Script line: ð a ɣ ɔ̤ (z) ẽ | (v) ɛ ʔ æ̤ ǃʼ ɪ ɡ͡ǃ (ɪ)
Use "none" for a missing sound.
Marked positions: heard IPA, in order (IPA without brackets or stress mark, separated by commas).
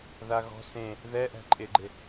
s, ð, ɪ